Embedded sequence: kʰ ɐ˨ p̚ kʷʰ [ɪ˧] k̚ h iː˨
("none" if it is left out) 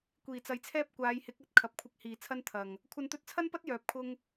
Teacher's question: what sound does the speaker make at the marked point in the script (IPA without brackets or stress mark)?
ɪ˧